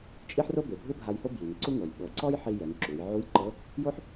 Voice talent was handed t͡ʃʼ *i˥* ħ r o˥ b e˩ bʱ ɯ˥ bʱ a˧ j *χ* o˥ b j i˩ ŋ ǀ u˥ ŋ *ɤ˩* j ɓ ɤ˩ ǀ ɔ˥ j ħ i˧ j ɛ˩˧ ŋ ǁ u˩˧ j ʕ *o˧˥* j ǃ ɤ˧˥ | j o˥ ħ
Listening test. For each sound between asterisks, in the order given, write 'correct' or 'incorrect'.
correct, incorrect, correct, incorrect

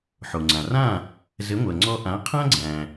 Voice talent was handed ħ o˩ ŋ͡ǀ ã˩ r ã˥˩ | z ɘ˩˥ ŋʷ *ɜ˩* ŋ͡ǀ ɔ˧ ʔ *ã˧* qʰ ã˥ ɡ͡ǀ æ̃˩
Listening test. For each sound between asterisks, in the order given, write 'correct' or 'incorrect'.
correct, incorrect

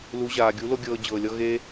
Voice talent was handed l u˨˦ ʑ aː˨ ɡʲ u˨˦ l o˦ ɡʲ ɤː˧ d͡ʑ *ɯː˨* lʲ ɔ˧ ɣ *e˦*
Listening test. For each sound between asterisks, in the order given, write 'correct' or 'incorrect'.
incorrect, correct

